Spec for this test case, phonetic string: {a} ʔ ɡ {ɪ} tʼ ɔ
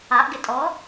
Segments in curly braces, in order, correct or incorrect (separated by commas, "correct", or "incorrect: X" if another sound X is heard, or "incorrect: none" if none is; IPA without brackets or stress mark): correct, correct